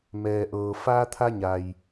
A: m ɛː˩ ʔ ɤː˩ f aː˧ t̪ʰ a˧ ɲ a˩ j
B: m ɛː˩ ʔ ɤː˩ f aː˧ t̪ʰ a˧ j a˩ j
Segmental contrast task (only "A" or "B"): A